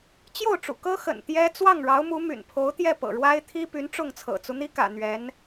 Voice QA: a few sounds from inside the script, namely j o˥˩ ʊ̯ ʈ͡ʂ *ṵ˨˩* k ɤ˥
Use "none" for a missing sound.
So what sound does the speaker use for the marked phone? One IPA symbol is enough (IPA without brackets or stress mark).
ṵ˨˩